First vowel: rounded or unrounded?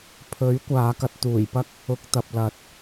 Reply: rounded